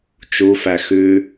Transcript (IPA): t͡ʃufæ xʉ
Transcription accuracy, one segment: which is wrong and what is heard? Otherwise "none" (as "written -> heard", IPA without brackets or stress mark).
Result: none